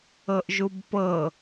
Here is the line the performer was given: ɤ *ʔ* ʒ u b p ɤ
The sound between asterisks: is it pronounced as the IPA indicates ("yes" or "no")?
yes